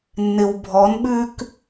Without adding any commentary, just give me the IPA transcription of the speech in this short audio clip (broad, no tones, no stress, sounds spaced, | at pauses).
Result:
nː ɪ w bʱ ɔ n ɓ ʉ k